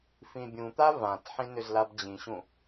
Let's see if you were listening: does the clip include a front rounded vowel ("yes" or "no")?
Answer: yes